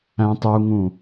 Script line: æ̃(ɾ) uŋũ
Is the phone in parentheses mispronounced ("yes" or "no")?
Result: yes